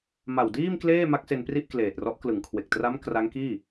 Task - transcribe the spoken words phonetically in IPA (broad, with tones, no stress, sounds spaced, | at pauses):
m a˨˩ w d iː˥˩ m k l eː˥˩ m a˦˥ k̚ s e˧ n p r i˥˩ ʔ k l eː˨˩ t̚ r ɔ˦˥ ʔ k l ɯ˩˦ ŋ kʰ w e˨˩ k̚ t r a˦˥ m k r a˦˥ ŋ k iː˥˩